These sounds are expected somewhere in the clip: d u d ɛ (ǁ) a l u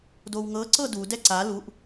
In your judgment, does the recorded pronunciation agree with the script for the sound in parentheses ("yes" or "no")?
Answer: no